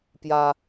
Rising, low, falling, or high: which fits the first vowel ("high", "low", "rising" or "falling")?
high